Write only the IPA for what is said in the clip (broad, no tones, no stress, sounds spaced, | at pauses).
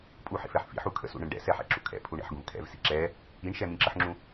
pʼ u ħ ḭ f ɛ ħ f ḭ ħ u kʰ ə̰ s ṵ ɳ ə̃ ɳ ɖ ɛ̰ s ɛ ħ ɛ̰ ǁ ṵ kʰ ɛ̰ pʰ u ɳ ɛ̰ ħ ɡ ũ v kʰ ɛ̰ v s ḭ ǁ ɛ | i ɳ ʃ ɛ m ĩ ǁ ə ħ ŋ͡ǁ ũ